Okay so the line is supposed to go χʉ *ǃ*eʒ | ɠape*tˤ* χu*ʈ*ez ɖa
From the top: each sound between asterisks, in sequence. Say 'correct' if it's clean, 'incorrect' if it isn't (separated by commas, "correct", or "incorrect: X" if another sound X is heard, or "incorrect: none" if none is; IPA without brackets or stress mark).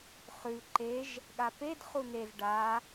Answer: correct, incorrect: d, incorrect: n̪